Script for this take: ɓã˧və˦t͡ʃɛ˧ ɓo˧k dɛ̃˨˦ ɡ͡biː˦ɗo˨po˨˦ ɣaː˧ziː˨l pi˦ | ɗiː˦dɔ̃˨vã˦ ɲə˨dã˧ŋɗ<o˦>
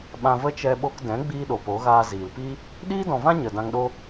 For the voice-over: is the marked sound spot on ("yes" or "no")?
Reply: yes